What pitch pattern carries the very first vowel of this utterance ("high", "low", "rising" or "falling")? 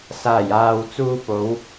low